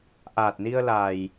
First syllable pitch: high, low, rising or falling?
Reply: low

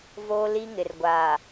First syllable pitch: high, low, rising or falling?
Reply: high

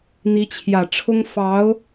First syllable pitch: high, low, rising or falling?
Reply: rising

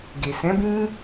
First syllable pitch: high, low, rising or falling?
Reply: low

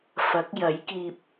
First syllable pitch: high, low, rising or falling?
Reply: rising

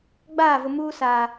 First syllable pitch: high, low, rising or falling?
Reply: falling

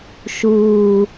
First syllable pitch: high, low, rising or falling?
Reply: low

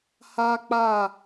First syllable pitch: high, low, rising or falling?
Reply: high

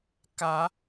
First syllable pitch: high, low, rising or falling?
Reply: low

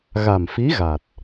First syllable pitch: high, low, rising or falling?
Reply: low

